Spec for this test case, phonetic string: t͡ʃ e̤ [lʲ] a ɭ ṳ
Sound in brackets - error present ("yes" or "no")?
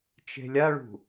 no